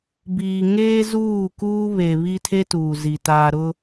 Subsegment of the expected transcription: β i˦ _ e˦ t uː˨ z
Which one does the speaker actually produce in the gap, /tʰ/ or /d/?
tʰ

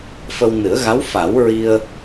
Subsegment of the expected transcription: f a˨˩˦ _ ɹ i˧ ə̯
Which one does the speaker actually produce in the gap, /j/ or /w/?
w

